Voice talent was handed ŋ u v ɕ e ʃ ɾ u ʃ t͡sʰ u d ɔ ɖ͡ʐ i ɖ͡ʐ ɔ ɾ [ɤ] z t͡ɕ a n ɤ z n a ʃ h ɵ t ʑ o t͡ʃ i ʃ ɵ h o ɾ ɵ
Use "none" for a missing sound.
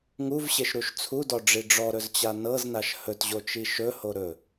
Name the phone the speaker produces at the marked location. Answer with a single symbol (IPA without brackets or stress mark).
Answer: ɵ